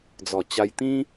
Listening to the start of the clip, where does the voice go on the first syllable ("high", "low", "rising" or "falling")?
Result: low